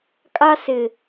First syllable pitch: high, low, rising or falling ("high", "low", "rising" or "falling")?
high